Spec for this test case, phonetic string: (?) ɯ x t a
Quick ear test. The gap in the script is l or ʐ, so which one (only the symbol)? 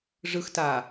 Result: ʐ